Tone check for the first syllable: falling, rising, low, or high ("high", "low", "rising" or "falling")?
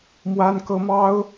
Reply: high